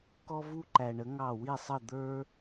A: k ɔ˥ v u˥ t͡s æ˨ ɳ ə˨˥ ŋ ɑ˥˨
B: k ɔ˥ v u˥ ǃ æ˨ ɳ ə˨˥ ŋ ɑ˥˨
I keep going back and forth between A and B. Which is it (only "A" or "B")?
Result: B